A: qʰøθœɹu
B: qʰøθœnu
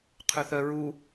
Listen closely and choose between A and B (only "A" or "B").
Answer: A